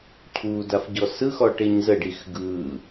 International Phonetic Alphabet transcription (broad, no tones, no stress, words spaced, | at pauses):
cʰu dafɟɔsɯxɔ ʈeɲzəɖix ɡɯ